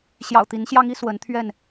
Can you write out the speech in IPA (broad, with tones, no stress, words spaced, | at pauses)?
ɕjɑ̰˨˩ʊ̯t̪i˨˦nɕjɑ˦ŋi˦ swə˨˦nt̪ʰɥɛ˥˨n